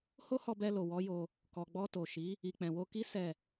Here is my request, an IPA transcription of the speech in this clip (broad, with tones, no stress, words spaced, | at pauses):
ho˦hɔ˧bɛ˧lo˨ wɔ˨˦jo˧ | kɔ˨ɡ͡bɔ˧to˨ʃi˨˦ | i˨k͡pɛ̃˨wo˧ki˦ sɛ˦˨